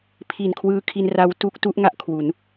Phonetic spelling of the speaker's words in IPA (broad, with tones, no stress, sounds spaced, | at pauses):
pʰ i˨˩ n kʰ w ɯː˧ kʰ i˧ n r a˦˥ w t u˦˥ k̚ t u˦˥ ʔ ŋ a˥˩ ʔ kʰ w u˩˦ n